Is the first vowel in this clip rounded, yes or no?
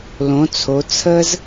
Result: yes